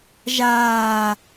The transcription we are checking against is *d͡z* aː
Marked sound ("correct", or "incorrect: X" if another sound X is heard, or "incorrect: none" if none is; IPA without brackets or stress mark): incorrect: ʒ